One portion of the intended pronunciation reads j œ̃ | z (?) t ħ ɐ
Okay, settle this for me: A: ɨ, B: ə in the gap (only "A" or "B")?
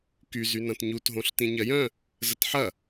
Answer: B